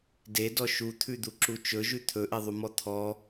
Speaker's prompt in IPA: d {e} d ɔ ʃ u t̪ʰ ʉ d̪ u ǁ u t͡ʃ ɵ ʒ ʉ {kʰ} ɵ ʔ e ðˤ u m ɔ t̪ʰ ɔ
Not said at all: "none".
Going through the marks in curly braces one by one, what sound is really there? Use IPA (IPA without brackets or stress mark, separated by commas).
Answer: e, t̪ʰ